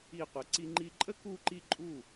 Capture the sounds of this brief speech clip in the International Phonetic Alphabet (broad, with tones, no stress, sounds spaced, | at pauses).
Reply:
i˧˩ qʷ ə˩˧ ǀ i˧ ŋ͡ǃ i˧ ǃʼ ə˥ k u˧ ǃ i˧ ǃʼ u˧˩